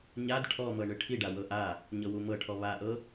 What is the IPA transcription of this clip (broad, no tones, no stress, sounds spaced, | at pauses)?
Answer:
ɲ a d ʈʰ ɔ m ɤ ɳ ɯ ʈʰ i ɖ a w ɤ ʔ a | ɲ ɤ w u m ɤ ʈʰ ɔ β a ʔ ɤ